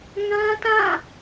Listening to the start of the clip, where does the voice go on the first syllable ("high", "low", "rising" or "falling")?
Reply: high